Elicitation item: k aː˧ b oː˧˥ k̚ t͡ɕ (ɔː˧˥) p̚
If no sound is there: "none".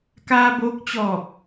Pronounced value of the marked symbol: ɔː˧˩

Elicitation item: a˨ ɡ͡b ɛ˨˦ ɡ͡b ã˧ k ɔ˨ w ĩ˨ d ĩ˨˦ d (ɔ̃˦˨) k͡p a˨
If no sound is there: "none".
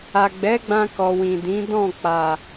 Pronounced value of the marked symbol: ɔ̃˦˨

